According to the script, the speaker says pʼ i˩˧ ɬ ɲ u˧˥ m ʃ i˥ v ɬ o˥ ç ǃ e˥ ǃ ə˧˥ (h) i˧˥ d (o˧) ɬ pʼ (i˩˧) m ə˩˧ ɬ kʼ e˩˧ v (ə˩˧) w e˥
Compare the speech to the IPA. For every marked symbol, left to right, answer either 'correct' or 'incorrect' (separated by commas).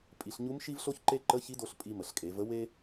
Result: incorrect, correct, incorrect, incorrect